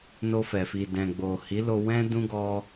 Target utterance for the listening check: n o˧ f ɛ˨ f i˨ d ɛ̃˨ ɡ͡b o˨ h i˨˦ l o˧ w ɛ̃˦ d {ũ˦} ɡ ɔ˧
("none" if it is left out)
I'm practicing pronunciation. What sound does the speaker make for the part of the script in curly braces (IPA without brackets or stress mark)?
ũ˦